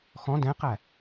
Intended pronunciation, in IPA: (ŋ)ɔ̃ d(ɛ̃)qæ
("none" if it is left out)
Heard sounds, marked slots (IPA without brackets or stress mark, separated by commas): x, ɛ̃